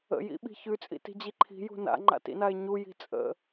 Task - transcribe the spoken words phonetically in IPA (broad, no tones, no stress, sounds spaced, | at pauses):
ə̰ j ḭ ɓ i̤ ç ʉ t͡sʼ ḭ t i̤ d͡ʑ i ǃʰ i̤ j ṳ n a̰ ŋ͡ǃ a̰ t ḭ n a e̯ ɲ u j i̤ t͡sʼ ə̰